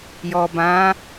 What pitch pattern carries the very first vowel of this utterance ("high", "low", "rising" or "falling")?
low